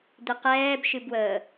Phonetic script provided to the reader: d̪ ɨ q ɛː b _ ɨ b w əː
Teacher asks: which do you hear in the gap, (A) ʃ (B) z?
A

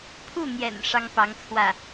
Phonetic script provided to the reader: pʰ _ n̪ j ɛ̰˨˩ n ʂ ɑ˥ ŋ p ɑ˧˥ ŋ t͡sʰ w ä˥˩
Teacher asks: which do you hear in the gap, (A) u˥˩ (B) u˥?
A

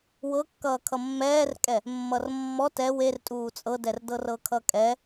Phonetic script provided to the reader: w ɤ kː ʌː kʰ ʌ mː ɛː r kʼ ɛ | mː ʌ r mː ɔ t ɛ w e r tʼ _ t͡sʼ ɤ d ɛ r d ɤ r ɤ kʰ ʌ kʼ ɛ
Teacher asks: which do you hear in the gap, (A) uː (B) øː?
A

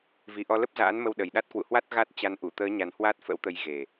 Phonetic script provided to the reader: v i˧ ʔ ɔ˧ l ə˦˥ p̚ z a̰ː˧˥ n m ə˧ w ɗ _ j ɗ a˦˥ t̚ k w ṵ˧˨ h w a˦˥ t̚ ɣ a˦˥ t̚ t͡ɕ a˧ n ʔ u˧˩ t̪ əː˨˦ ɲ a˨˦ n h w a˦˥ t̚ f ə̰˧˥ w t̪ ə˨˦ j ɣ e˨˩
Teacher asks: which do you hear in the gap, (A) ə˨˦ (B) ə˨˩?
B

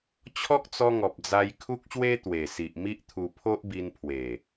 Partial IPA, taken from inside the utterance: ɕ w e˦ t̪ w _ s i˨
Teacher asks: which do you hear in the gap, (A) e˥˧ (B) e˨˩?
B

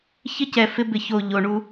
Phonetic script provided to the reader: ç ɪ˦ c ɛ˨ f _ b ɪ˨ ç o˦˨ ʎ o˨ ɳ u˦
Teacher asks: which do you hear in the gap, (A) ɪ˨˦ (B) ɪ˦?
B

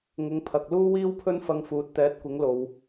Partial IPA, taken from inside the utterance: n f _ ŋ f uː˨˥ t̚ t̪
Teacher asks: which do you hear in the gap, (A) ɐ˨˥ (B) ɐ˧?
B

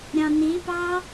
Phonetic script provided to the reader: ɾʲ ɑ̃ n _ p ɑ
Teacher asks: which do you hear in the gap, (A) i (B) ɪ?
A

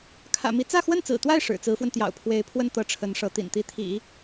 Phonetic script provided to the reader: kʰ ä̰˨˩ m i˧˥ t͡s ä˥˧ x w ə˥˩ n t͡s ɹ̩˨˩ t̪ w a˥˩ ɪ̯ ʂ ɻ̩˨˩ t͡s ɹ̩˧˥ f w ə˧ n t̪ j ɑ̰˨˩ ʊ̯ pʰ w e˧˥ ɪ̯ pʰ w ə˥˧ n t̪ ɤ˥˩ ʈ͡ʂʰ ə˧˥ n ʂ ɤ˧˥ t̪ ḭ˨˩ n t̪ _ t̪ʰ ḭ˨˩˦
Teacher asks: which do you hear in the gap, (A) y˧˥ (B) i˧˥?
B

